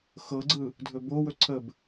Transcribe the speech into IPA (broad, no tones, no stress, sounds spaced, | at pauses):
x ɤ ɡ͡ǀ ɯ | dʱ ɵ b o w ɵ ǀʰ ə b